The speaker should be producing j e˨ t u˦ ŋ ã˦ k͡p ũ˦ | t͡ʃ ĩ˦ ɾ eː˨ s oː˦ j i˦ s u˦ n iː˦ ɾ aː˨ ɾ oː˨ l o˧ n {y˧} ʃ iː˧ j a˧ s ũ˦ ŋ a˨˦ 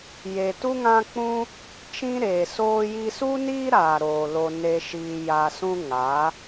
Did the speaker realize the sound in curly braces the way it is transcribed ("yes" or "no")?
no